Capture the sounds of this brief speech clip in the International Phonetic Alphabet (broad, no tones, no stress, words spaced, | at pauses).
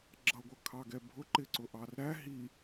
ɡ͡ǁʌɡʷʌkʰɑɡɛ bʱʊǃɪǀʊ ʔɑrɾæ ɦi